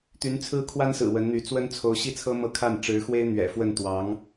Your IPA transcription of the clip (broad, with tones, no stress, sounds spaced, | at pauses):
t̪ y˧˥ n t͡sʰ ɹ̩˥ kʰ w a˥ n s ɹ̩˨˩ w ə˧˥ n n̪ y˧˥ t͡s w ə˥ n t͡sʰ o˧˥ ʊ̯ ɕ i˥˩ t͡sʰ ɤ˥ m ɤ˥˧ kʰ a˥˩ n ʈ͡ʂ ɻ̩˧˥ x w e˥ ɪ̯ n̪ ɥ ɛ̰˨˩ f w ə˥˩ n t̪ w ɑ˧˥ ŋ